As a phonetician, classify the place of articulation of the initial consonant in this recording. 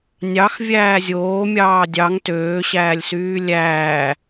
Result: alveolar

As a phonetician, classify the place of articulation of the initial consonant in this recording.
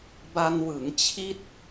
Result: labial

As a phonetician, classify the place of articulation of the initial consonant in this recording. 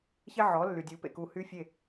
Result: palatal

